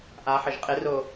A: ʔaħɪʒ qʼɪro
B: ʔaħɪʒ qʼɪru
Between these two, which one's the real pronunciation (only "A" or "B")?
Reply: A